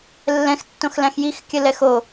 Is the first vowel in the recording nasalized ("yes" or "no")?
yes